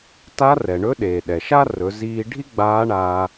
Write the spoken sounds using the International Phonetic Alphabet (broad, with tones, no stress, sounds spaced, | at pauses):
t a˧˥ r ɛ˩ ɳ ɵ˧˥ ɗ eː˩ ɗ ɛ˩ ʃ a˥ r ɵ˩˧ z iː˧ ɖʱ i˥ ɡ͡b aː˧˥ ɳ aː˧